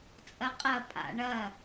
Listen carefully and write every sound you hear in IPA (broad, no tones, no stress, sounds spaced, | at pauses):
t͡sʼ ɐ qʼ ɐ pʼ a̰ ɳ ɐ